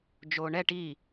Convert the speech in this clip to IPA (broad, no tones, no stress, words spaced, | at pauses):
d͡ʒoːɳɛ ʈi